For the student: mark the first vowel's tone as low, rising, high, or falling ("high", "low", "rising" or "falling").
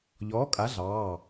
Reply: rising